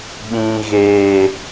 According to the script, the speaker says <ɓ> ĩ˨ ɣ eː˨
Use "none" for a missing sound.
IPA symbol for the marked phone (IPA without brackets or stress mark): ɓ